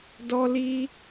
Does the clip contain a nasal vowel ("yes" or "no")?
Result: no